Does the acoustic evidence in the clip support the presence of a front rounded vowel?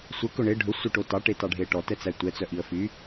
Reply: yes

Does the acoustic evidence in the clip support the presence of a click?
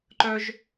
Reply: yes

